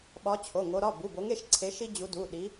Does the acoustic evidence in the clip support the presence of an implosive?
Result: yes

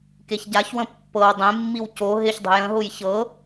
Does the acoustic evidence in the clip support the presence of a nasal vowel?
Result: yes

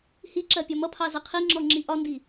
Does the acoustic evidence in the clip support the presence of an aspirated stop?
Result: yes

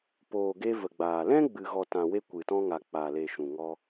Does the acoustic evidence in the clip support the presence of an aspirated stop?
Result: no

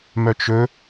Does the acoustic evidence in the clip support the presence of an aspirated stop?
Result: no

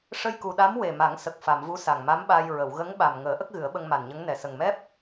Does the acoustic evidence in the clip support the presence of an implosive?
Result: yes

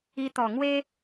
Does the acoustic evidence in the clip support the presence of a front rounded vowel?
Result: no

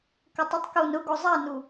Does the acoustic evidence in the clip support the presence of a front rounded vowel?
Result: yes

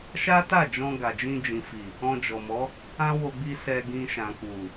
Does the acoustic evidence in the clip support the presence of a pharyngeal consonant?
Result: no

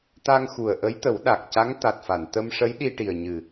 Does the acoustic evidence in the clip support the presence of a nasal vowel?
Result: no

